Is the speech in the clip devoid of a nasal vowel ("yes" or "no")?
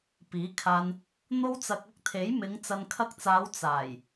yes